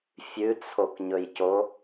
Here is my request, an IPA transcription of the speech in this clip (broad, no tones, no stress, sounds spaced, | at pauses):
fʲ ʉ t͡sʰ o k ɲ ɵ j c o